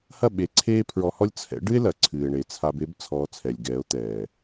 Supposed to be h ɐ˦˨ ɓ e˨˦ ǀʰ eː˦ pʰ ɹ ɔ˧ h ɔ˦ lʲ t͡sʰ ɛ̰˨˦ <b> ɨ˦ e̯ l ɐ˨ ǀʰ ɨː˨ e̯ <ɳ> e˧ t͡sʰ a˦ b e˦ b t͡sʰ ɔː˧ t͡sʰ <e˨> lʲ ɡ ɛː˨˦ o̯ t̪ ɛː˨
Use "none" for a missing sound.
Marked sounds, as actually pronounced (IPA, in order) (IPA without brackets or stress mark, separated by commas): ɖ, ɳ, ɛ˨